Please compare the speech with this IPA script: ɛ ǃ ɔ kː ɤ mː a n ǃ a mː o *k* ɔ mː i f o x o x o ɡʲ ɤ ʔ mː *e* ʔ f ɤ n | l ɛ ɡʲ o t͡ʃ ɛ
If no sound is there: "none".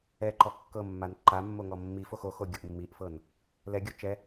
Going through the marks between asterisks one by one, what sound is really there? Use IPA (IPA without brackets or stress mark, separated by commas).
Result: ŋ, i